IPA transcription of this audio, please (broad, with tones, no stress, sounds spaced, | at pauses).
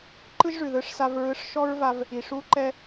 ǃ ɯ˥ ʒ ʐ ʉ˩ ð ɯ˧ ʂ s a˧ v ɹ ɯ˧ ʂ ʃ ɔ˥ ɹ v a˧ v | i˩ ʂ u˥ ǃ ɛ˥